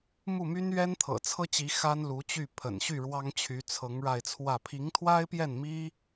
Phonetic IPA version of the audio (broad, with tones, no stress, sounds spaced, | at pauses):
m u˥˩ m y˥ n ɥ ɛ˥ n t̪ʰ ɤ̰˨˩ t͡sʰ ɤ˥ t͡ɕ i˧˥ x a˥ n l u˧˥ t͡ɕ y˥˩ pʰ ə̰˨˩ n ɕ y˥˩ ɻ w ɑ˥ ŋ t͡ɕʰ y˧˥ t͡sʰ ɤ˧˥ ŋ ɻ a˥˧ ɪ̯ t͡sʰ w ä˥˩ pʰ i˧˥ ŋ t̪ʰ w a˥ ɪ̯ p j ɛ˥˩ n m i˥